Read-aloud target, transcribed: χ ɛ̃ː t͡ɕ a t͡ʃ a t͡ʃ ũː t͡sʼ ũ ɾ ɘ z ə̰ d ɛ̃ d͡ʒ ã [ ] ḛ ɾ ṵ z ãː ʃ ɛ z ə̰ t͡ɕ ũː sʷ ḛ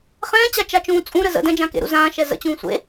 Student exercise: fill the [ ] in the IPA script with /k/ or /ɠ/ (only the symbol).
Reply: k